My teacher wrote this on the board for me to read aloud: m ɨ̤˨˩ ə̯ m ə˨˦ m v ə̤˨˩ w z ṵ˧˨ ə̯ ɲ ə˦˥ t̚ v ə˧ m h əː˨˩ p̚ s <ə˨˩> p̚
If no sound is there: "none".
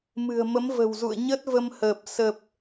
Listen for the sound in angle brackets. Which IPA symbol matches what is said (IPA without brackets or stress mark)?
ə˨˩